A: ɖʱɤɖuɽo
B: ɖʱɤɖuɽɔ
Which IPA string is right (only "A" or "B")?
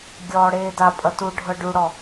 B